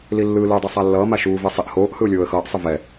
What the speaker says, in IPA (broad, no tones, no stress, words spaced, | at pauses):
lilːɯ luːdˤɛsˤalːʌː maʃuː vesˤiʔ hoːʔ hɯʊ̯lʲoːə̯xʌːʔ sˤɯvɛ